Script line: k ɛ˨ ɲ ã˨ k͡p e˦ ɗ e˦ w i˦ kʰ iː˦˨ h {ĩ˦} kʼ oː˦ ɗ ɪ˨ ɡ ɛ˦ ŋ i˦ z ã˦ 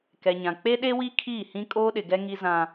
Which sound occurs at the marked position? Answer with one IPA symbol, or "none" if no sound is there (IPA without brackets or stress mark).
ĩ˦